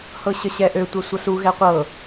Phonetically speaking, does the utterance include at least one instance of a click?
no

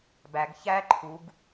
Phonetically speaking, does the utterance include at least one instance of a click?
yes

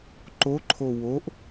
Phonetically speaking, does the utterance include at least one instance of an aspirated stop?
yes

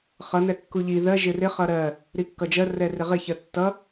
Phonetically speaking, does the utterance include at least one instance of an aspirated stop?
no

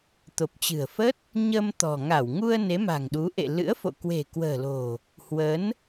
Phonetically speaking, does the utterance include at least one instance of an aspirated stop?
no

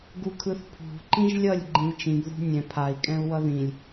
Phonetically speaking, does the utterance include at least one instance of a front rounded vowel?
no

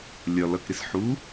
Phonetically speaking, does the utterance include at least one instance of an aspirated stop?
no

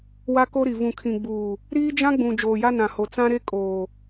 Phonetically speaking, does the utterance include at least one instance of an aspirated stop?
yes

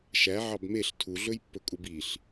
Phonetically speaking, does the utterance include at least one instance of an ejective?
yes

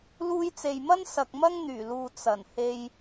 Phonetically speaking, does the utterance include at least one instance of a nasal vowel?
no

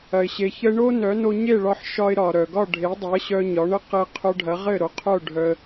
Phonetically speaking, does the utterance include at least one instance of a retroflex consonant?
yes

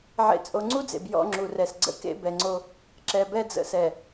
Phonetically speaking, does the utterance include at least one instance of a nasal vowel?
no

